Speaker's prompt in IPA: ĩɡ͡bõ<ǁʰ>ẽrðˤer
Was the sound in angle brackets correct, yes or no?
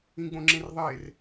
no